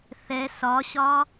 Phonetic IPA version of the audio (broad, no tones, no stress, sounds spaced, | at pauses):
θ ɛ s ɒ ɕ ɒ